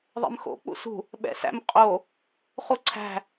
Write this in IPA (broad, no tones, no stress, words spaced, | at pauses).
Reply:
ðˤɛ̰mxo̰ k͡pṵsṳ | ɓɛ̰sæ̰mqʼo | χuǀʰæ̤